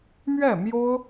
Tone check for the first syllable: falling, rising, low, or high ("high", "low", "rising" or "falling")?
falling